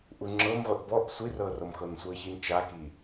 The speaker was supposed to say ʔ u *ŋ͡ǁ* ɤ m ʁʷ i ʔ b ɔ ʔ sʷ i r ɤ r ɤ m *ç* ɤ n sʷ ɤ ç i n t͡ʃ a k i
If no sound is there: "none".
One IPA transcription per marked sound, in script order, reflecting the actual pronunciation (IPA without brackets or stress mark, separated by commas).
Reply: ŋ͡ǁ, x